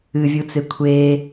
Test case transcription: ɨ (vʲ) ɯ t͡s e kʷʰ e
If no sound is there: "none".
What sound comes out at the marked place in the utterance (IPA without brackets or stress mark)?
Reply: vʲ